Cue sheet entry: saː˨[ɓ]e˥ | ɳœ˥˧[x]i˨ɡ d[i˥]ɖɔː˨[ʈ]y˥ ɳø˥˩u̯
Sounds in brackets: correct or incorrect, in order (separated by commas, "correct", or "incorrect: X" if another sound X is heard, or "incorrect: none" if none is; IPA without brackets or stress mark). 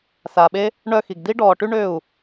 correct, correct, correct, correct